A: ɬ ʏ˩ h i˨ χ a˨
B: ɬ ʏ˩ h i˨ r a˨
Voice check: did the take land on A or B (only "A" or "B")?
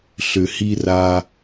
B